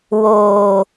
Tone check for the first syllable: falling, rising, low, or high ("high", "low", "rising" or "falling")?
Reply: low